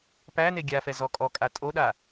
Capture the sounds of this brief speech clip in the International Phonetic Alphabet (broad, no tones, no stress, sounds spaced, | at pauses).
p æ n e ɡʲ a f ɛ z ɔ kʼ ɔ kʼ a tʼ o ɗ a